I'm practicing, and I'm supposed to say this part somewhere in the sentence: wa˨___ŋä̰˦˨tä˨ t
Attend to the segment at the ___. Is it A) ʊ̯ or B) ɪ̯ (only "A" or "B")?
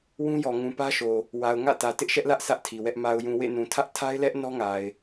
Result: A